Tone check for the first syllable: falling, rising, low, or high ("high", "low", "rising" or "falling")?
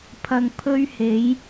low